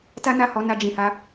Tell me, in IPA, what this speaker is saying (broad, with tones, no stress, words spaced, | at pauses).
ta˦na˦˨hɔ˨˦ na˧d͡ʒĩ˨ha˨˦